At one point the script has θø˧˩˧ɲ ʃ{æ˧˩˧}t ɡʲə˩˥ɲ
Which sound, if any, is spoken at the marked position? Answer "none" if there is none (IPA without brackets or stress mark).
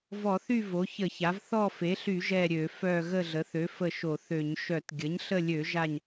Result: œ˧˩˧